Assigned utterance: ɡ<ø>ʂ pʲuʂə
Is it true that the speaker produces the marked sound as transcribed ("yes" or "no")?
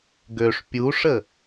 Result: yes